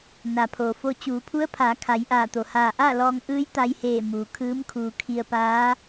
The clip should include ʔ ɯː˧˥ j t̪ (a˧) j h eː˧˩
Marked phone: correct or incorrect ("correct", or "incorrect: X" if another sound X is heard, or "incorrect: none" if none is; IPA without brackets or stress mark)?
correct